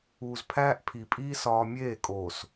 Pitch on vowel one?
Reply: low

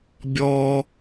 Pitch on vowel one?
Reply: low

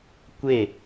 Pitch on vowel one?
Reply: falling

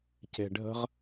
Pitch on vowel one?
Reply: low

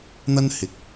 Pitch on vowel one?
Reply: high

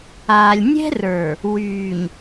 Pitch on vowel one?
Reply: low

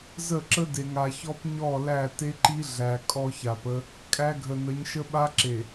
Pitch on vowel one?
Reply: falling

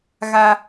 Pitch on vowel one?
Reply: high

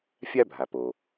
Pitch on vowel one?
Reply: high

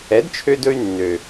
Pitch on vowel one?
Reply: rising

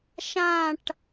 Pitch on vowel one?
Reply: falling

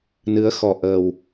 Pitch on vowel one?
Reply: rising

